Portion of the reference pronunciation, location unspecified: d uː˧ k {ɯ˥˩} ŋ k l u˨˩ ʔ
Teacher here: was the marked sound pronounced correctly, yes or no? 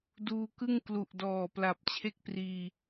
yes